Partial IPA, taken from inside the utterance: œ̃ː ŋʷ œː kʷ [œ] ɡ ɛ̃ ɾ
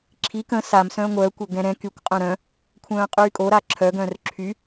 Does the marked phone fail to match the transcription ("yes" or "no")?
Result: no